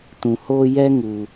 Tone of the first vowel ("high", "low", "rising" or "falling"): low